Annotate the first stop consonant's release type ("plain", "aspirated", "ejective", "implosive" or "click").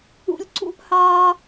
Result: click